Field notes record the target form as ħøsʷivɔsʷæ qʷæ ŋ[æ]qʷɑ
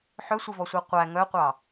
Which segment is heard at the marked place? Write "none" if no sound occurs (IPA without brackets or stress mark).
œ